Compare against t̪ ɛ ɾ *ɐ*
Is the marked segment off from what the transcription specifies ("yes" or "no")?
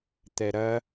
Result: no